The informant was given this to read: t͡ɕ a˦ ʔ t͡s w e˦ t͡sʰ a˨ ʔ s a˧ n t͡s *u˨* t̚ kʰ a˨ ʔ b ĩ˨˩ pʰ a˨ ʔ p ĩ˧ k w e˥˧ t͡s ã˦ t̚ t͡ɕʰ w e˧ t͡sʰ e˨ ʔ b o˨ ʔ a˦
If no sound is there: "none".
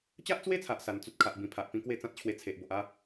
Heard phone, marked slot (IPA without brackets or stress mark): u˦